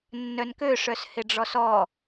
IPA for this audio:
nːœnkøʂœs hɪɖ͡ʐɔsɔ

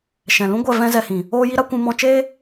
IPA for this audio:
ʃɛ̃˨lũ˦ɡʷɛ˦˨ vɛ̃˦zɛ˧hĩ˨ | oː˦ji˦ɾa˦ kʷũ˧mɔ̃˧t͡ʃeː˦

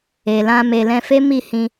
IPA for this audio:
e˨lã˧ me˨ lɛ̃˧fe˦mi˦˨ hĩ˧

